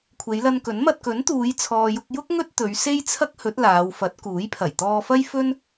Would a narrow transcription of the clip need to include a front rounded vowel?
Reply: no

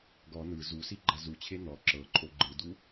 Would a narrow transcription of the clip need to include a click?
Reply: yes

